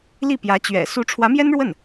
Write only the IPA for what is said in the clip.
l i˥˩ p j ä˧˥ t͡ɕ ɥ ɛ̰˨˩ s u˧˥ ʈ͡ʂʰ w ä˧˥ m j ɛ˥ n ɻ w ə˥˩ n

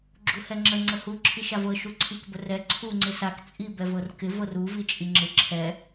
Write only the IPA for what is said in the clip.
ɡ͡ǁ u h ɛ ŋ͡ǁ ə ŋ͡ǀ ə h u ǁʰ i ʃ a v ɤ ʃ u ǀʰ i k b ə r ɛ ǀʰ u ŋ͡ǀ ɪ s a k t͡sʼ i b ɛ v ɤ r k ɪ v ɤ r u v i t͡ʃʼ i ŋ͡ǁ ɪ ǁʰ ɛ

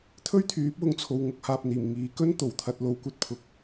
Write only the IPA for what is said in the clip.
t̪ʰ ɵ˥ ɥ t̪ʰ yː˨˥ p̚ w ʊ˨˧ ŋ t͡sʰ o˨ w ŋ ʊ˧ k̚ h aː˨ p̚ n̪ iː˨˩ m ŋ iː˨˧ k ɵ˥ n t̪ o˨˩ w t̪ʰ ɐ˧ t̚ l o˧ w kʷ ɐ˥ t̚ pʰ ʊ˨˥ k̚

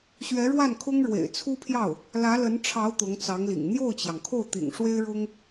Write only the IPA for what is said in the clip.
ɕ ɥ ɛ˧˥ ɻ w a˥˩ n kʰ ʊ˥ ŋ ɻ w ḛ˨˩ ɪ̯ t͡sʰ u˥ pʰ j ɑ˥˩ ʊ̯ | l ä˧˥ l ə˧˥ n ʈ͡ʂʰ ɑ˧˥ ʊ̯ t̪ ʊ˧˥ ŋ t͡s ɑ˧˥ ŋ l ḭ˨˩ ŋ n̪ j o˥˩ ʊ̯ t͡ɕ j ɑ˩ ŋ kʰ o˥˩ ʊ̯ t̪ ḭ˨˩ ŋ ʂ w e˥ ɪ̯ ɻ ʊ˥ ŋ

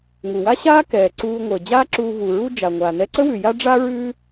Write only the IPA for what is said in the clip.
ŋ u˩ w a˥ ɕ aː˥ k ɛː˩ ǀ uː˧ ŋʷ əː˩ d͡ʑ aː˥ ǁ uː˧ v u˩ ɹ u˥ d͡ʒ a˩ ŋʷ aː˩ n ɛ˧ ǀ ə˥ w ʉ˩ j a˥ ɖ͡ʐ a˥ ɹ ʉː˥

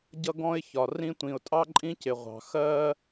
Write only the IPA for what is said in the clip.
ɟ ʌ˥ ɡ ɔ̃˥ ɪ̯ ç ɒ˩ r ĩ˥ tʷ ĩ˩ ʊ̯ tʼ ɑ˥ ǃʼ ĩ˥ c ɪ˩ ʁʷ ɑ̤˩ x ɜ˥

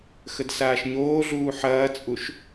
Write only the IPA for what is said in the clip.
x ə d s aː ʃ ɲ oː ɮ uː ħ ɐː t͡sʼ u ʃ

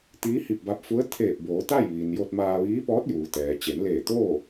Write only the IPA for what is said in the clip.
t̪ iː˧˥ h i˧˩ p̚ b a˧ p̚ f u˧˥ ə̯ t̪ʰ eː˧˩ p̚ b oː˩˧ t̪ a˥˨ j ʋ iː˩ n j o˧ t̚ m aː˧ ʋ iː˧˥ p ɔː˧˥ t̚ j uː˩ t̪ ɛː˩ t͡ɕ e˩˧ n l eː˧˩ t̪ o˥˨

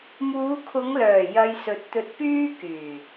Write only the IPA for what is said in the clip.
m uː˨˧ kʰ ʊ˨˧ ŋ l œː˨˩ j ɐ˧ j s ɵ˨˥ t̚ t̪ ɵ˧ t̚ p yː˥ k yː˨˩

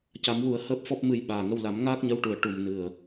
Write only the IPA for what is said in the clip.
c a˨˩˦ m w u˨˩˦ ə̯ h əː˦˥ p̚ f ɔ˦˥ p̚ m ɨ˧ j ɓ aː˨˩ ŋ ə˧ w l a˨˩˦ m ŋ aː˦˥ k̚ ɲ ə˧˥ w ʈ u˨˩ ə̯ ʈ u˨˩ m n ɨ˨˩ ə̯

